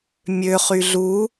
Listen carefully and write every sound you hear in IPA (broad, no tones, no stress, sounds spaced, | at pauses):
mʲ ø χ y ɮ u